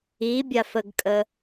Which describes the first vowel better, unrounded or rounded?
unrounded